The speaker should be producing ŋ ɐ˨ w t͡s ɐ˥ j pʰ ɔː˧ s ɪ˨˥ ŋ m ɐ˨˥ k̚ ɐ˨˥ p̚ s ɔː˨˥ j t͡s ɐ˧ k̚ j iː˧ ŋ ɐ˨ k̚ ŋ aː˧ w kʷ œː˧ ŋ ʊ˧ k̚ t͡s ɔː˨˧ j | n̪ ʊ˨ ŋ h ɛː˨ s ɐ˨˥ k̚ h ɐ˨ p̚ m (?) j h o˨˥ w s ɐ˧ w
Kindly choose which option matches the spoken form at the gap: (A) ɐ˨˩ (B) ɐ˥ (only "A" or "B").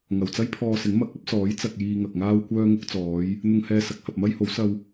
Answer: B